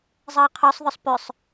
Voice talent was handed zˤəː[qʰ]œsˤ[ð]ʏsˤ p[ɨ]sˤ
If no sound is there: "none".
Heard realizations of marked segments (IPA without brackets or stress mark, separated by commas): qʰ, ð, ʏ